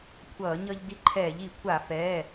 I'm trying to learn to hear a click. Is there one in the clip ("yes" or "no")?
yes